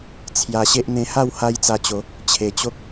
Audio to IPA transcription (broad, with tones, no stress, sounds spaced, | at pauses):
t͡sʰ j a˧ ɕ e˦ ʔ n̪ ẽ˧ h a˥˧ w h a˦ j t͡s a˧ t͡ɕ o˨˦ | t͡ɕʰ e˨˩ t͡ɕ o˦ k̚